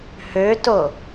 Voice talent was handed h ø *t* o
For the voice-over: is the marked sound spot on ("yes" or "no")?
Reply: yes